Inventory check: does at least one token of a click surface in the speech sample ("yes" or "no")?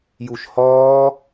no